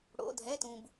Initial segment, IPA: ɽ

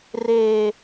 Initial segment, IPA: r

